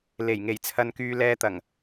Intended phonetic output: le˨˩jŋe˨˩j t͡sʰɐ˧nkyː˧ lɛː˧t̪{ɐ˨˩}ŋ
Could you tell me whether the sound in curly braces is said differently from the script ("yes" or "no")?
no